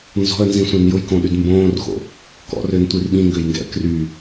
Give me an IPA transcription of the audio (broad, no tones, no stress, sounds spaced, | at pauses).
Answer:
n z ɔ̤ ə̯ n z ĩ sʷ ɛ̃ n j ʊ j k õ ɗ y d m b õː r x o̰ | k ɔ̰ r ø n tʷ i r ɓ ĩ ŋ ɡ ø j ŋ ɡ ɛ̰ ə̯ k r y